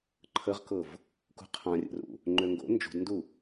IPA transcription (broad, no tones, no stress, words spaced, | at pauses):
ǃʰəʁkɤv | kṳqʰãrʲə̰rṵ | ŋ͡ǃøŋɡo̰ nd͡ʒṳdndu